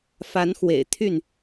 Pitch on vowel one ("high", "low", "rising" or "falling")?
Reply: rising